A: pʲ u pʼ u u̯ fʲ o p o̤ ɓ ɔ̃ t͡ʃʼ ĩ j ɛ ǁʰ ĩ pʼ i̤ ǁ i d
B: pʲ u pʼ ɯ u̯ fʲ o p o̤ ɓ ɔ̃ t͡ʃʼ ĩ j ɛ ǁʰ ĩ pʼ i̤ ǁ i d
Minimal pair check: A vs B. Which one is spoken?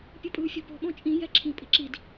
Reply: B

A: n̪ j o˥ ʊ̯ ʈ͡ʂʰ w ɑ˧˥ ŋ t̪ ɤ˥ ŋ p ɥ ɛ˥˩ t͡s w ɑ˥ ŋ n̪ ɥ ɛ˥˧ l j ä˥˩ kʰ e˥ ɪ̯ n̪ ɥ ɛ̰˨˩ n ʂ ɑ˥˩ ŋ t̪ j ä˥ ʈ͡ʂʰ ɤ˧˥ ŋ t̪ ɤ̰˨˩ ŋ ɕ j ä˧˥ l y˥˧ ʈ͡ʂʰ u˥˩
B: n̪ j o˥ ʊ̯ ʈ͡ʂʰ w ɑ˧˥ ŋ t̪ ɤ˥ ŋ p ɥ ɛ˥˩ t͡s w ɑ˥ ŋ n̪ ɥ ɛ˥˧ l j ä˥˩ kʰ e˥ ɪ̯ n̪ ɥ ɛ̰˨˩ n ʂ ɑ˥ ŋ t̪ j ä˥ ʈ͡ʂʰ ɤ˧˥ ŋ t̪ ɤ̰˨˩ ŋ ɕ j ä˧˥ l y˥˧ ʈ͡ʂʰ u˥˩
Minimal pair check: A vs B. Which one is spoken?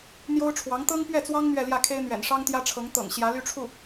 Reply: B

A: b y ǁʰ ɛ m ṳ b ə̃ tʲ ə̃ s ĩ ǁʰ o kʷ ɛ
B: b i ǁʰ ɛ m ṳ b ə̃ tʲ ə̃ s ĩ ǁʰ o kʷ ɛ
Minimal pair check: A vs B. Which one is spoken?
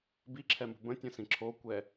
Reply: B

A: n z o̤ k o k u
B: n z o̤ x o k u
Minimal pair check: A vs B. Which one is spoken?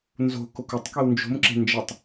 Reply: A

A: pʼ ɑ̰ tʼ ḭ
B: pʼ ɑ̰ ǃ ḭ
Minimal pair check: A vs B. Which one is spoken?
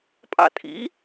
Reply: A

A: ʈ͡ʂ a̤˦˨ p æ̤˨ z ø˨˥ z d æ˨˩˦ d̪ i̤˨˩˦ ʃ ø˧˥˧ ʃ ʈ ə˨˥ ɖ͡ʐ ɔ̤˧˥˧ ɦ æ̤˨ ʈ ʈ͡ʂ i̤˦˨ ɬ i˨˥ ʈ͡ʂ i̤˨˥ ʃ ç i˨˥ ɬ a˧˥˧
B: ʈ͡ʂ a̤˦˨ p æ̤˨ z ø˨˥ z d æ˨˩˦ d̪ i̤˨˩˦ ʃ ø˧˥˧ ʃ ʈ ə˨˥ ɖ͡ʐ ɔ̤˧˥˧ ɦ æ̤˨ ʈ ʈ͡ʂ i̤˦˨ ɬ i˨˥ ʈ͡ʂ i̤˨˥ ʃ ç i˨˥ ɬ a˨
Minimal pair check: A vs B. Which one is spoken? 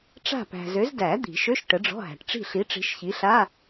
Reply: A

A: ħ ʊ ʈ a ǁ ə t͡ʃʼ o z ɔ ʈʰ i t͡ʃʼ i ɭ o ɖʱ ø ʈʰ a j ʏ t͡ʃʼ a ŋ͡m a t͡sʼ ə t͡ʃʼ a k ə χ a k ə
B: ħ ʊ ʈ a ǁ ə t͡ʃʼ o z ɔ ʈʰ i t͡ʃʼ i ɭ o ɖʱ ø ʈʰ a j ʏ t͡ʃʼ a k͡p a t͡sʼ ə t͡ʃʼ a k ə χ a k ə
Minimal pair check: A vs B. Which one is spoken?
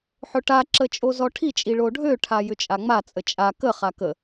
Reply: A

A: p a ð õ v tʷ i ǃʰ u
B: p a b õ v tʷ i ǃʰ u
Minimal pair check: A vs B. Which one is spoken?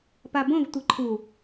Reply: B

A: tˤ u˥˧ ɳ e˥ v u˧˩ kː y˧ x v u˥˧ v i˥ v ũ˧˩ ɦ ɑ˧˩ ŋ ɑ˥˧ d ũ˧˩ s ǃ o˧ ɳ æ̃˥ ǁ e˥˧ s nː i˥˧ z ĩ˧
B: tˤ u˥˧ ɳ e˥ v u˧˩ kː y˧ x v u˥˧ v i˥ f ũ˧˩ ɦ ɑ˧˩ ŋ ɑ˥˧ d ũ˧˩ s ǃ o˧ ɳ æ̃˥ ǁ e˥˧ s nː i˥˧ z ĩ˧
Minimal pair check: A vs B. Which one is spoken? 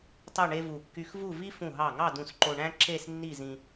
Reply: B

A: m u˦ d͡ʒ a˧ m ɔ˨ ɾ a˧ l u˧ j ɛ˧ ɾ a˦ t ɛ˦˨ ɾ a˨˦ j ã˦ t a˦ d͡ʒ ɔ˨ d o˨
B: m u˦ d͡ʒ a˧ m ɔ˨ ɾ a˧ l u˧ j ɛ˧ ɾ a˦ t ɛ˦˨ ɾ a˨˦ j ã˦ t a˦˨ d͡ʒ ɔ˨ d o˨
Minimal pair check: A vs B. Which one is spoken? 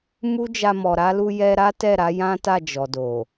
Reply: B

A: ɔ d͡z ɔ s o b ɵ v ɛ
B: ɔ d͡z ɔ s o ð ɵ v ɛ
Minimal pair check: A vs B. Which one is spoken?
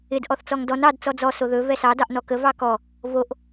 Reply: B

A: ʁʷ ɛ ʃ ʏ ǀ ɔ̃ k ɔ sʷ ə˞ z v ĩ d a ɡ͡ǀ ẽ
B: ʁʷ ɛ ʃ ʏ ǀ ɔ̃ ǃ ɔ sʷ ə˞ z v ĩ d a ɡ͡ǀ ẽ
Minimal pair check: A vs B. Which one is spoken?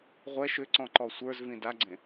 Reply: B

